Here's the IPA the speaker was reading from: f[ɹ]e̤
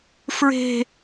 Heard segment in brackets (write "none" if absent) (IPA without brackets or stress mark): ɹ